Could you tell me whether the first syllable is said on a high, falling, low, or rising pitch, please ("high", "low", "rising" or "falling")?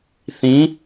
rising